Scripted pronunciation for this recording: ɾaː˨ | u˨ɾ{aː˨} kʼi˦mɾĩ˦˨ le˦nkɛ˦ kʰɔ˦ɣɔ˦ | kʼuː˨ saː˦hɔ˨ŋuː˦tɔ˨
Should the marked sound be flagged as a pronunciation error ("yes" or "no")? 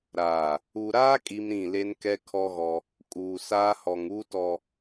yes